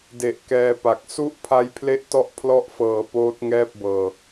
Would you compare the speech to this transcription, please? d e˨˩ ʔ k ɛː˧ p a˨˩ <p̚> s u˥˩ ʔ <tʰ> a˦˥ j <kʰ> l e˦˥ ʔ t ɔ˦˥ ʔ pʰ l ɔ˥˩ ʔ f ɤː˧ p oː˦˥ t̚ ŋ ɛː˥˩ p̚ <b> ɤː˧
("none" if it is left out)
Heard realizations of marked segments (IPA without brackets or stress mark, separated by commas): k̚, pʰ, pʰ, b